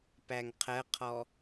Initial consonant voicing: voiceless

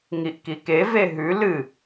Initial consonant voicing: voiced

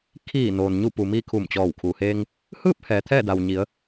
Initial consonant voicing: voiceless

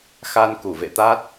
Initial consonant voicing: voiceless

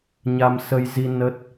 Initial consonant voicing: voiced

